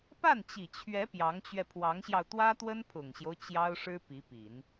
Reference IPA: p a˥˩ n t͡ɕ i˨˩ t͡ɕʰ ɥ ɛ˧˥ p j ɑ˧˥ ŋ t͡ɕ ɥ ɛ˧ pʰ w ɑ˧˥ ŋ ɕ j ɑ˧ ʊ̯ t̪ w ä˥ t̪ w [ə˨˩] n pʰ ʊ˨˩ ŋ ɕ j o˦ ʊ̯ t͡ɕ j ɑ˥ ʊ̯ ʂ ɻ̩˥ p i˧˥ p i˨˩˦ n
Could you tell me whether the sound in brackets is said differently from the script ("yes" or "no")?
yes